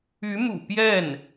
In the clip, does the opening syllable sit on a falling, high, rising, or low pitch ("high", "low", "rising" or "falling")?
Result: rising